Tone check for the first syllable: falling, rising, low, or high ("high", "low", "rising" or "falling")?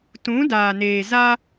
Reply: rising